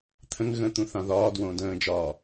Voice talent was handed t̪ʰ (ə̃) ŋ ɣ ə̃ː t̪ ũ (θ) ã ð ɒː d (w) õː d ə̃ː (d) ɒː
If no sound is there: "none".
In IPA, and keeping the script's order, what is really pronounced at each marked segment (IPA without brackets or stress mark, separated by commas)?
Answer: ə̃, θ, w, d͡ʒ